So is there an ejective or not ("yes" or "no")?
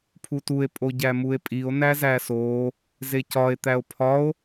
yes